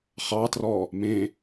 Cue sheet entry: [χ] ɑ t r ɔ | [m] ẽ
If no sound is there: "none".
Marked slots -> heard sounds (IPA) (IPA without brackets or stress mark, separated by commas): χ, m